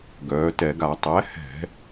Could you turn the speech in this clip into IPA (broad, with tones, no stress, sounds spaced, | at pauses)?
ɡ œː˩˧ t ɛ˧˩˧ ɡ a˧˩˧ tˤ ɛ˩˥ h ɛ̤˧˩˧